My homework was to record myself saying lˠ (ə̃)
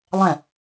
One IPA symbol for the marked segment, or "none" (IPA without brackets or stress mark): ɛ̃